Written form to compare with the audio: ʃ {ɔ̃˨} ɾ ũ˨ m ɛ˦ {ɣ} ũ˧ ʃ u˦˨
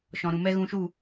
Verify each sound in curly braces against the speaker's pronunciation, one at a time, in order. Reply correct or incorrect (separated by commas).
correct, correct